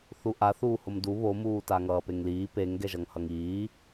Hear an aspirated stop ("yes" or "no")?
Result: no